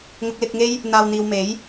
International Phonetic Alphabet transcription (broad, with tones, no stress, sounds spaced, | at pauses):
ŋ ʊ˧ k̚ l ɪ˧ k̚ ŋ e˥ j | n̪ aː˨ w n̪ iː˨ w m e˨˥ j